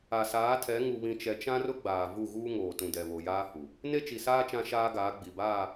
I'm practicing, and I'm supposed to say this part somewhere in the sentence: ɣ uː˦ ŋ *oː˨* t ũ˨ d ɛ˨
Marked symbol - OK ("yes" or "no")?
yes